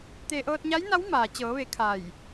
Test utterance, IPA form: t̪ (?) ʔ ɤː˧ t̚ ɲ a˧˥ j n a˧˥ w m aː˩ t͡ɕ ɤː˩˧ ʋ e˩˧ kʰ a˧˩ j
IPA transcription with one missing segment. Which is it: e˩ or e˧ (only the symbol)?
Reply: e˧